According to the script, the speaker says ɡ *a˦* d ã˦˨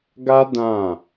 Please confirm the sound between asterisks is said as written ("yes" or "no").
yes